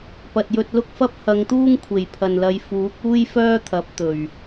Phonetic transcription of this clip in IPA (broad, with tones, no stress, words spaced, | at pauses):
pɐ˨t̚jɵ˧t̚lʊ˥k̚fɐ˥p̚ hɐ˨˧ŋt̪uː˥ŋkʷʰe˨˩j pʰɐ˨nlɐ˨˧j fuː˨˥k̚ uː˥jfœː˥t̪ʰɐ˨˥p̚ t̪ɵ˨˩ɥ